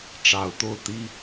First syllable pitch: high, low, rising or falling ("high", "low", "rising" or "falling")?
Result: low